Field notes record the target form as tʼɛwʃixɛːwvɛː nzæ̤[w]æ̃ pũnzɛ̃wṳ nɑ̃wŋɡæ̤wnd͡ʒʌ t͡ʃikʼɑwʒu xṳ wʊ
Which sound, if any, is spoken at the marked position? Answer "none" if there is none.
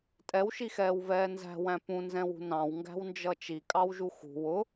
w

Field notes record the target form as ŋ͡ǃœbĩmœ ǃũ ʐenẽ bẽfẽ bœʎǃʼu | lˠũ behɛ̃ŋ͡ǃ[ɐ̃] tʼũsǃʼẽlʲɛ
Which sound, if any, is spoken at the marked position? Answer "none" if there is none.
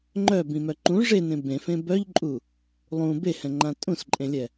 ã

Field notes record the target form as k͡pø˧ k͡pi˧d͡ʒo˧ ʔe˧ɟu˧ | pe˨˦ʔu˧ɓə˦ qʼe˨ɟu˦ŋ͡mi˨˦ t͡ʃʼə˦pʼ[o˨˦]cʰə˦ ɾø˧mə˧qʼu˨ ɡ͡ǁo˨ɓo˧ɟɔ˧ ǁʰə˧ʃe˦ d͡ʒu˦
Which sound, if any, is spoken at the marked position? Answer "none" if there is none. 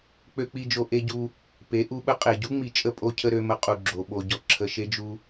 o˦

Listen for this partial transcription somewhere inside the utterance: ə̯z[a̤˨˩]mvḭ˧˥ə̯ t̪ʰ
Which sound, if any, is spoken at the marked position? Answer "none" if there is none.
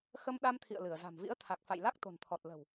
a̤˨˩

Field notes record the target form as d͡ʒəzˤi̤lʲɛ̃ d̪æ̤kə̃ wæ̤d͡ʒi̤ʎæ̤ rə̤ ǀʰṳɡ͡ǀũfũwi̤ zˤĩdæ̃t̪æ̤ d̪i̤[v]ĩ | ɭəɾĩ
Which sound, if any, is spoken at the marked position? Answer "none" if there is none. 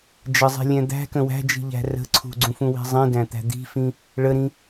f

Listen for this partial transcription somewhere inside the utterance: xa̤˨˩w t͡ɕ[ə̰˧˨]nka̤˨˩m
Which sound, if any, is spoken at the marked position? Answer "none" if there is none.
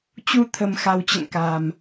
ə̰˧˨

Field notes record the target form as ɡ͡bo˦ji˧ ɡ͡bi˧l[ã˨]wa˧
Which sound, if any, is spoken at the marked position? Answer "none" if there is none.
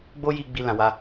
ã˨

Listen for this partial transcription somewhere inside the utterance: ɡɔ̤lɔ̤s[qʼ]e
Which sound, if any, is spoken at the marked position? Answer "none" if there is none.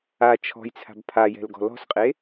qʼ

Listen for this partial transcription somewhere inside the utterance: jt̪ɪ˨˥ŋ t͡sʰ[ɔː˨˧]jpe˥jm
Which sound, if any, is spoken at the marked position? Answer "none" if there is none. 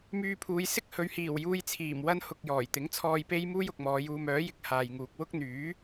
ɔː˧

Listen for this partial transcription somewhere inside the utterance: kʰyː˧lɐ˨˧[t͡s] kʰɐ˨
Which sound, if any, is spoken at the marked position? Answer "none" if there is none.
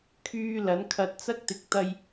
n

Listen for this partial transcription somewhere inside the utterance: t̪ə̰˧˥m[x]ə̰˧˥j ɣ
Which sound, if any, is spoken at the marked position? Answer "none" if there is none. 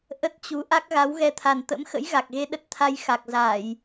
x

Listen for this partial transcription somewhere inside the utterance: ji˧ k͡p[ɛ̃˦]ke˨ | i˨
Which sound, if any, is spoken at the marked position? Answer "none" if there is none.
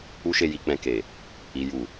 ɛ̃˧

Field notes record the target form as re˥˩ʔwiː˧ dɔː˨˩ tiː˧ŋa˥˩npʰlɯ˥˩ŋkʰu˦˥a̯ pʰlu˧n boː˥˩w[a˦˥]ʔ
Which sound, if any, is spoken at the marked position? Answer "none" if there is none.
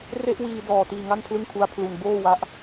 a˦˥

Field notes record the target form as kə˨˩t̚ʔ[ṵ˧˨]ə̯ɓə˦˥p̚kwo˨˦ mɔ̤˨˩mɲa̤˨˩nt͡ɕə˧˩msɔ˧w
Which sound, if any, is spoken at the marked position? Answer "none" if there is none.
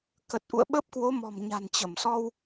ṵ˧˨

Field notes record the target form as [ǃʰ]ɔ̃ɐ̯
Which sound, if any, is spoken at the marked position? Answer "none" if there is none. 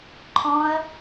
ǃʰ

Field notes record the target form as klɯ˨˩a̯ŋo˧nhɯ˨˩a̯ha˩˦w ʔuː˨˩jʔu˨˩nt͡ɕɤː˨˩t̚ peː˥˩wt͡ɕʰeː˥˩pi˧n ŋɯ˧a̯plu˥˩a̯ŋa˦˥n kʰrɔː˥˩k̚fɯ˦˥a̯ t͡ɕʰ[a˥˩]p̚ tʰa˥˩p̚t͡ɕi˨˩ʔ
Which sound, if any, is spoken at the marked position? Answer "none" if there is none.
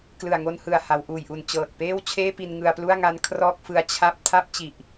a˥˩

